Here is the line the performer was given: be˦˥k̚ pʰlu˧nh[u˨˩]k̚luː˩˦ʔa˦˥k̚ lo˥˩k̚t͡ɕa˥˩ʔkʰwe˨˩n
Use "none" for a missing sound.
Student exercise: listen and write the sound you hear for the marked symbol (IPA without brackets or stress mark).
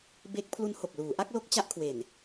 o˨˩